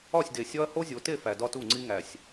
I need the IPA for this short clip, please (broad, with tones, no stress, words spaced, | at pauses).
ɒ˦˨sʲde˨sʲɒ˦ɐ̯ ho˦zʲo˨te˦˨ fæ˨dɒ˦tu˦˨ŋ͡ǀi˦ ŋæ˨sʲ